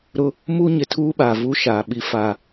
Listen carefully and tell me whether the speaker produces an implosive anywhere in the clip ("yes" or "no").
yes